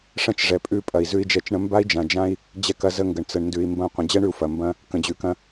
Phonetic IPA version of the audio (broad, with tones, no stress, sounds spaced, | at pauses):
ʂ ɐ̃˦ t͡ʃ ʐ ɛ˨ pʼ ʉ˦˨ pʼ ɐ˨ i̯ z ʉ˦ i̯ d͡ʒ ɛ˦˨ t͡ʃ ɳ ə̃˦ m b a˦ i̯ d͡ʒ ã˨ d͡ʒ ã˦ i̯ | d͡ʑ ɛ˦ k ɐ˦ z ə˦ ŋ ɡ ə˨ ɳ t͡s ə˨ ɳ n d ʉ˨ i̯ m b ɐ̃˦˨ qʷ ə̃˨ d͡ʑ ɛ˦ ɳ ʉ˨ u̯ f ɐ˨ m b ɐ̃˦ | k ə̃˨ d͡ʑ ʉ˨ k ɐ̃˦